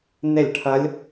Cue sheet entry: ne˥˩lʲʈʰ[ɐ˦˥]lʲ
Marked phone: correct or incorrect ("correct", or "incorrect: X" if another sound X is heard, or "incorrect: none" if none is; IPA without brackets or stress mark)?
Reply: correct